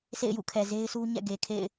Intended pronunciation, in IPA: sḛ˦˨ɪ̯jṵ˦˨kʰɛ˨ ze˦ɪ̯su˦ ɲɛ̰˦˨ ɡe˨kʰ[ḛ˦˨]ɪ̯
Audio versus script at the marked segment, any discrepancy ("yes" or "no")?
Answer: no